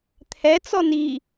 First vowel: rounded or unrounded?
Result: unrounded